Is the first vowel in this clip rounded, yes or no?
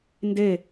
no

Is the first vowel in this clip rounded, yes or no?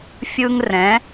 no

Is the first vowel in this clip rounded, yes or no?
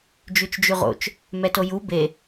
yes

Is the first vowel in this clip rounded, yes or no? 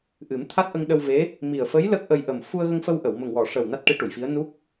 no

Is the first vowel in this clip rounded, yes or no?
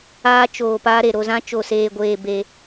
no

